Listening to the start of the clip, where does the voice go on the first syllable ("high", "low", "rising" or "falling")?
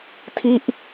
falling